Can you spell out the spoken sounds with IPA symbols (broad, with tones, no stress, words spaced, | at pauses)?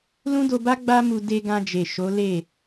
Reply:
lũ˦do˧ba˦ ɡ͡ba˦mu˧ de˧ɡã˧d͡ʒe˨ ʃo˨˦le˦˨